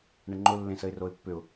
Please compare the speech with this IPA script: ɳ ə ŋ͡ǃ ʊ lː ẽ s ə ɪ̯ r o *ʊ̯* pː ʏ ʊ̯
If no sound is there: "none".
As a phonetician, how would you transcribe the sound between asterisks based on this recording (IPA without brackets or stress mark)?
ɪ̯